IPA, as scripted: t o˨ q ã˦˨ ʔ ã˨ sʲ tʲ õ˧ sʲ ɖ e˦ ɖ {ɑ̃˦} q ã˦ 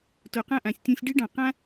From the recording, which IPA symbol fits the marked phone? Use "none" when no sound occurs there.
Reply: ɑ̃˨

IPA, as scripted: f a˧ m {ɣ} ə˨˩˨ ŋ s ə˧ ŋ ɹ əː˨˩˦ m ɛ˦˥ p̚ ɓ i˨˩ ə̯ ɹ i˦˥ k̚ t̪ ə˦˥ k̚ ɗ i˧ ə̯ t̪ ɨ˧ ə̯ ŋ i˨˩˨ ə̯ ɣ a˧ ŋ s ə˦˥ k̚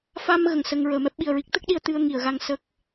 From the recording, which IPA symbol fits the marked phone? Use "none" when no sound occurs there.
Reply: ɣ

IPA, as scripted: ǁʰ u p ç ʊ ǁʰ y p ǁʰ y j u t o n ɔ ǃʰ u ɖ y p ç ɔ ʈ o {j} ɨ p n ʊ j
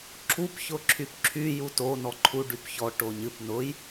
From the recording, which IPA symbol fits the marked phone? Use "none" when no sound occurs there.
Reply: ɲ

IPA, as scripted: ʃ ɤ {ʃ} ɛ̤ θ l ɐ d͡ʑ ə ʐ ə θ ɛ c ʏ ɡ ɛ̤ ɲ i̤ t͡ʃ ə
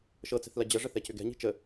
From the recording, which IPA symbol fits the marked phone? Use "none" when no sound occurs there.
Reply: t͡s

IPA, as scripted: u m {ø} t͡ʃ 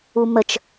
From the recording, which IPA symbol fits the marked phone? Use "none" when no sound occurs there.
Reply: ə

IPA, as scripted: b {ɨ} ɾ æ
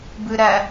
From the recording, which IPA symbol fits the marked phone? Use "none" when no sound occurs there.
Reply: ɨ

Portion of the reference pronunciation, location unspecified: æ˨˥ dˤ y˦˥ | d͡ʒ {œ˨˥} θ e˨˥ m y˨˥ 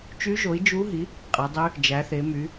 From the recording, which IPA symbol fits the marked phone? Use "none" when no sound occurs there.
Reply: æ˨˥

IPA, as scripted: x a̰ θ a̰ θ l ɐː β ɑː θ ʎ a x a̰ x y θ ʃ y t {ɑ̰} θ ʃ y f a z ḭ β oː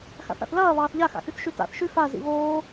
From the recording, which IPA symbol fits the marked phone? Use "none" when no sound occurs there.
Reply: a̰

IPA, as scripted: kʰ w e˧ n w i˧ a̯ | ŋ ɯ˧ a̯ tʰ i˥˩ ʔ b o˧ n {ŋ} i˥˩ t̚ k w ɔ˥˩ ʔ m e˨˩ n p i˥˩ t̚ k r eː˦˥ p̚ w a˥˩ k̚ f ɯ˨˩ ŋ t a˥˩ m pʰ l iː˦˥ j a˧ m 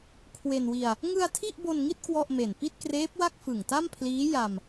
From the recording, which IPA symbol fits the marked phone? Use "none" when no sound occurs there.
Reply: ŋ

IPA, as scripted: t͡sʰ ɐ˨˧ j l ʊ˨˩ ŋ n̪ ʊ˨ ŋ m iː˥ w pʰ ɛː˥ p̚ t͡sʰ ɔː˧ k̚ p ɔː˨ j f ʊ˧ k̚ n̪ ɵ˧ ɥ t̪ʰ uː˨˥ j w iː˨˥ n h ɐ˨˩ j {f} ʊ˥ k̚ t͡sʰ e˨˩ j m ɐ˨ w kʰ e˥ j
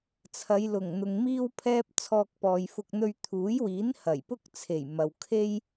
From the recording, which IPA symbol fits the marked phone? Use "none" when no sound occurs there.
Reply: p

